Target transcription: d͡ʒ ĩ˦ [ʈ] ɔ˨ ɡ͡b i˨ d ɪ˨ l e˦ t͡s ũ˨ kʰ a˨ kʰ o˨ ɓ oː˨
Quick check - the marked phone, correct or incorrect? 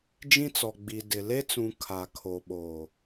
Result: incorrect